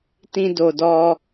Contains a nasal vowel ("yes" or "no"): yes